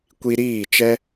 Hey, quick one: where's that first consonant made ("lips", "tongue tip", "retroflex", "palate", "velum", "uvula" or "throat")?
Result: velum